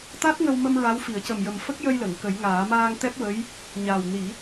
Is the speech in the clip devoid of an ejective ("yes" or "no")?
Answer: yes